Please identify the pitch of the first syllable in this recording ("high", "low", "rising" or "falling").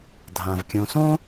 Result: low